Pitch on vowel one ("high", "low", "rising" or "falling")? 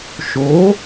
rising